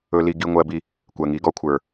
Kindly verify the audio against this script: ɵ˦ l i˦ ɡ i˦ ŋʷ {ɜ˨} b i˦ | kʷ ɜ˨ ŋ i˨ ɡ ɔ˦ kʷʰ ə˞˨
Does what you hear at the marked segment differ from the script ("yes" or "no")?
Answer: yes